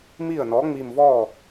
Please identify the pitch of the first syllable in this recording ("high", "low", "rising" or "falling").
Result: falling